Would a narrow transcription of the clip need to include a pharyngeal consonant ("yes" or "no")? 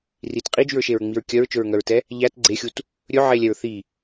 yes